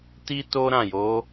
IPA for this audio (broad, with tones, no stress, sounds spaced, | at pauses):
t i˦ t o˦ ɾ ã˦˨ j o˨˦